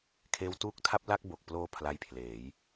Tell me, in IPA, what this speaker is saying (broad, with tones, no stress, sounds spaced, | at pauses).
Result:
kʰ eː˧ w t uː˦˥ k̚ tʰ a˥˩ p̚ l a˥˩ k̚ b o˨˩ k̚ p l oː˧ pʰ l a˦˥ j pʰ l eː˩˦ j